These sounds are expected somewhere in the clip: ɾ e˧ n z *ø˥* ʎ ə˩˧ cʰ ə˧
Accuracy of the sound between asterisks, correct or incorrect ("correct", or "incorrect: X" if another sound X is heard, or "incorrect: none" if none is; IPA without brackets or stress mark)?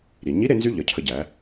incorrect: y˥